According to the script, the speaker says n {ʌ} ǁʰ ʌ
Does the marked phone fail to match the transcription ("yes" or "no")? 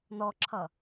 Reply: yes